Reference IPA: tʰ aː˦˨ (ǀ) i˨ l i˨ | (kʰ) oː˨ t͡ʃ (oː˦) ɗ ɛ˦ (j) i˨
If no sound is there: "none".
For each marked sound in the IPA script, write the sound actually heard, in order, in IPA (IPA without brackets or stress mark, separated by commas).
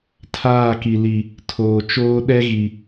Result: k, tʰ, oː˦, ɣ